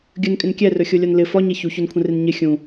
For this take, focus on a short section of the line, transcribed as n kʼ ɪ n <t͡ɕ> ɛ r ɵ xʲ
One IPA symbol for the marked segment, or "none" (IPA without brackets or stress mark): kʲ